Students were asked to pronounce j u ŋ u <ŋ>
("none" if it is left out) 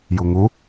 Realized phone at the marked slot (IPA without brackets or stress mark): none